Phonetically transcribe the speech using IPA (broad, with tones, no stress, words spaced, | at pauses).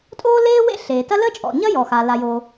tʼoː˥leː˥ wḛ˥ɬeː˩tɐ˥ ləː˥t͡ʃʼɔ̰˩ɲɐ˥ jɔ˩xa˩ la˩jo˩